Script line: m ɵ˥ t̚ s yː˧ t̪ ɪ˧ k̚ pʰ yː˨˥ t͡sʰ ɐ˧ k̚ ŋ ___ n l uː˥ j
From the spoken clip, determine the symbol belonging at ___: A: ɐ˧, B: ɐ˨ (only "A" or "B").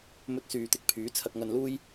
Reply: A